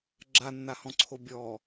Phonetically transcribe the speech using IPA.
ɡ͡ǁ a nː a h ɔ̃ ǀʰ o bʲ ɔ

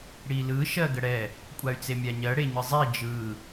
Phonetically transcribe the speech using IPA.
ɽ i l ɯ ʃ ɜ ɡ ə ɽ ɛ | kʷʼ a y̯ t͡s e mʲ a ɲ ɜ ɽ e ɲ ɯ zˤ i d͡ʒ ɯ

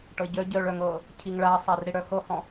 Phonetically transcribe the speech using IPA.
ʈ ɤ ɟ œ ɟ œ ɭ œ ŋ ɤ | cʰ i ŋ ɭ a sˤ a r ɾ i ɽ œ x ɤ h ɔ̃

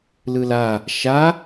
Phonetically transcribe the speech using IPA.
l ɯ l a | ʃ a

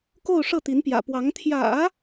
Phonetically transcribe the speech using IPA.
k o˥˧ ʊ̯ ʂ ɤ˥˩ t̪ i˧˥ n p j ä̰˨˩ p w ɑ˧˥ ŋ t̪ʰ j ä̰˨˩˦

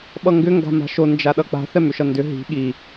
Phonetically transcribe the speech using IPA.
ɓ ʌ ŋ ɡ ʏ ŋ ɡ a̤ m a̤ ʃ o n d͡ʒ a ɗ ʌ k͡p a̤ θ ɛ m ʏ ʃ ʌ n d ʏ ɦ i̤ ɠ i

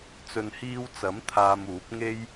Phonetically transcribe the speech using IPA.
t͡s ɵ˨ n h iː˧ w t͡s ɐ˨˥ m t̪ʰ aː˧ m uː˨˥ p̚ ŋ e˥ j

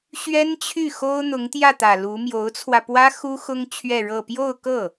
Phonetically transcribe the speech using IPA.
ɕ ɥ ɛ˥ n t͡ɕʰ y˥˩ x o˥ ʊ̯ n̪ ʊ˧˥ ŋ t̪ j ä˥˩ t̪ ä˨˩ l u˧˥ m j o˧˥ ʊ̯ t͡sʰ w ä˧ p w ä˥ x u˥ x ʊ˥ ŋ t͡ɕʰ ɥ ɛ˥˧ ɻ ɤ˥˧ p j o˥˧ ʊ̯ k ɤ˥˩

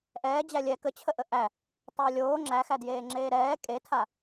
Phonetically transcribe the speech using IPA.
ʔ ɛː d͡ʑ æ lʲ ɛ k ə t͡ɕʰ ə ʔ ə ʔ æ | tˤ əː lʲ oː ŋ͡ǁ æ x æ d j eː ŋ͡ǁ eː ɾ ɛː kʼ e tʰ a

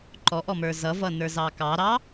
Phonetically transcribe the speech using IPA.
ǃ ɔ ʔ ɔ m ə˞ z ʌ v ʌ n ə˞ z ɑ k ɑ ɾ ɑ

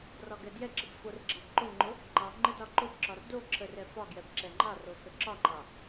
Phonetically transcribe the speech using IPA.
r ɒ ɡ ɛ d j ɛ ǁ ə b f o r ɡ͡ǁ ɑ b ǃ o ŋ͡ǃ ʊ | ŋ͡ǃ ɑ ŋ͡ǃ ə d ɒ ǃ ʊ b ǁ ɒ r d o ǁʰ ə r ɛ f ɒ ɡ j ɛ b ǁ ɛ ŋ͡ǃ ɑ r o x ə ǁ ɒ ŋ͡ǃ ɑ

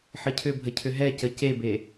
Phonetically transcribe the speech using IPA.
ħ ə cʰ ʏ bʱ ə cʰ ʏ ɦ ɛ c ə c e b e

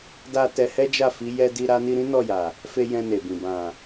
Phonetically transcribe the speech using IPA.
d a˧ t ɛ˧ h ɛ˦ d͡ʒ a˦˨ f i˨˦ j ɛ˧ d i˧ ɾ a˧ n i˧ ɾ ĩ˦ n ɔ˦˨ j a˨ | f e˧ j ɛ̃˧ n e˨ b ĩ˨ b ã˨

